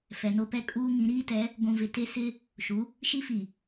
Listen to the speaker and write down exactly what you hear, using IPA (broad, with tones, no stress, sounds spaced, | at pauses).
f ɛ˨ n o˦ p ɛ˦ kʼ uː˦ ŋ ĩ˨˦ ɾ iː˦ t ɛ˨˦ | ɡʷ ũ˨ v ɪ˨ t e˦ s ɪ˦ | ʃ u˨˦ | ʃ i˦ f i˨